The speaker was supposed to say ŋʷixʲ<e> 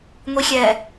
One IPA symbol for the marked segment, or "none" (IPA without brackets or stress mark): ɛ